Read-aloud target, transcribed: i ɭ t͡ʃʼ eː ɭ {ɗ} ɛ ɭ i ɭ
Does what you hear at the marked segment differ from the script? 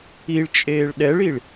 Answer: no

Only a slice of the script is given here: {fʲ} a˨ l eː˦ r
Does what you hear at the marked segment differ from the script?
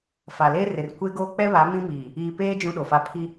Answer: yes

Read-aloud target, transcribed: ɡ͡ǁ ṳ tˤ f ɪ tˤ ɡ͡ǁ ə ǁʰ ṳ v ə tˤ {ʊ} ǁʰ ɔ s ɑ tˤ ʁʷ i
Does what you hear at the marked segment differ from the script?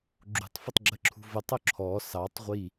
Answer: no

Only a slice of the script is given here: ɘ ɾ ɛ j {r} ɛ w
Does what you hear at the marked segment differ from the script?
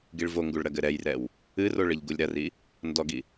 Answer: no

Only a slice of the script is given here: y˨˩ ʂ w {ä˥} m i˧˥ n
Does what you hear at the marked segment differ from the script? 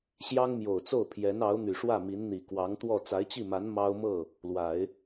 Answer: yes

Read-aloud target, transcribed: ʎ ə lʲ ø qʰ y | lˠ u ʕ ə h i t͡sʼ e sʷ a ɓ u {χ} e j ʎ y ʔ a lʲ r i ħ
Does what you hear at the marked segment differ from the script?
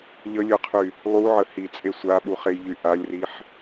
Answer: no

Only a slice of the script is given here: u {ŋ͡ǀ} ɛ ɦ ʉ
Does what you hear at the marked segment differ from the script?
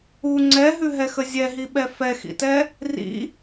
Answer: no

